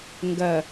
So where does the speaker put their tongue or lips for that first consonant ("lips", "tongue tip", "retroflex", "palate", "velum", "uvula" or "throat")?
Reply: velum